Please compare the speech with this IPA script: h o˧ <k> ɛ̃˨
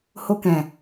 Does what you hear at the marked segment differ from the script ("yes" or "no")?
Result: no